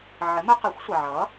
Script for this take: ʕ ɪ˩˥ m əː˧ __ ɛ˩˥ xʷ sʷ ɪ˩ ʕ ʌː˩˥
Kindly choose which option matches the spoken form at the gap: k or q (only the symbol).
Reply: q